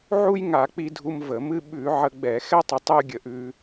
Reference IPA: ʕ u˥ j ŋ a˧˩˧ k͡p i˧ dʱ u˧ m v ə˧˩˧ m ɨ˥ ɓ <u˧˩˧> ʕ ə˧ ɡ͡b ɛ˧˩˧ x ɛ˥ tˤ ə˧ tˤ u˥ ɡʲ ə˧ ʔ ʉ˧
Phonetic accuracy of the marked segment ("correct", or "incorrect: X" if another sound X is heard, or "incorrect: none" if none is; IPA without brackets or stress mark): incorrect: ʉ˧˩˧